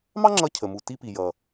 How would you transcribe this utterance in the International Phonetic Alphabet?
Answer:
mɑ˥ŋ͡ǁʌ˧cʰə˩mu˩ ti˧pi˩ jʌ˩

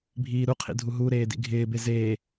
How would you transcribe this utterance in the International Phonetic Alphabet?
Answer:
bʱiːɾuqʰḭ dʱuɦuɾeː dḭɡʱɪːbe zeː

